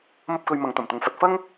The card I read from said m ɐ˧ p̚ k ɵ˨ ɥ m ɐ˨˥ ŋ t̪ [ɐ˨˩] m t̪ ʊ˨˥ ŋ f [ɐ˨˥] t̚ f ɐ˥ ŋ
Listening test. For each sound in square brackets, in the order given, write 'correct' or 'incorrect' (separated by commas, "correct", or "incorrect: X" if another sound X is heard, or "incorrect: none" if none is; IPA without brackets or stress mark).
correct, correct